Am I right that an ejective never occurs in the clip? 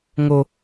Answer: yes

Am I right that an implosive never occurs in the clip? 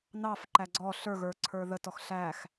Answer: yes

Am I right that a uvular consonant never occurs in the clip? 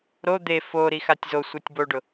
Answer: yes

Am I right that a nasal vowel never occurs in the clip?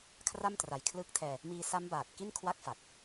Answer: yes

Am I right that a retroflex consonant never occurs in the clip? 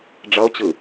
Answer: no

